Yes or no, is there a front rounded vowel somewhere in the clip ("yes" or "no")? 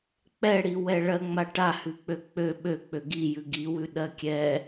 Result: yes